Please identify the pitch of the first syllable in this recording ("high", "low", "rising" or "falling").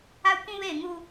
high